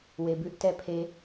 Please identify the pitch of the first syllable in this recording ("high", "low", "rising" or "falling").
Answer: low